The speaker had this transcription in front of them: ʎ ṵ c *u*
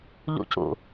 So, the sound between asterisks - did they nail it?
no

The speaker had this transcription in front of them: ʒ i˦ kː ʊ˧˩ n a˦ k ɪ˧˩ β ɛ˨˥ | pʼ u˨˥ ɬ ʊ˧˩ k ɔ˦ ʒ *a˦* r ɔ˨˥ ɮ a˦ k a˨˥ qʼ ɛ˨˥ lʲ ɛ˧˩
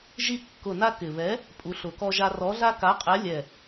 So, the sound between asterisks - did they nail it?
yes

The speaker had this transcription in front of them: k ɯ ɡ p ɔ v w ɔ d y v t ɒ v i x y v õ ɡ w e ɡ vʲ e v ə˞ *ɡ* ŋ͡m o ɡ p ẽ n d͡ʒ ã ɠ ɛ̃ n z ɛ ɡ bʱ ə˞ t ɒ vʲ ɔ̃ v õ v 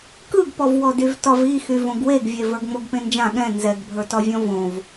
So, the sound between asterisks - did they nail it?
yes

